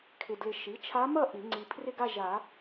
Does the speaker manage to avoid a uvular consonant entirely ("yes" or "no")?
yes